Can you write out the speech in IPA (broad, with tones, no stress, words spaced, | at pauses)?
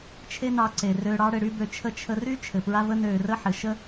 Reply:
t͡ʃʰe˦nɑ˧ ǀe˨ rø˧ɽɑ˦ ɽɘ˧ɽy˦bø˧t͡ʃʰə˦ t͡ʃʰə˧ry˦ t͡ʃʰɘ˨pɹa˦və˦ nøː˨rə˧ ħɘ˨ ʃə˦